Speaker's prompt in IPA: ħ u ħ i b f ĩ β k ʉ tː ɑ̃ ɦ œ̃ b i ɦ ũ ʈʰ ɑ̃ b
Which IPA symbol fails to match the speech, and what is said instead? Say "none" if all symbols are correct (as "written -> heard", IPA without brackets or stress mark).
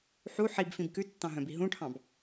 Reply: β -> b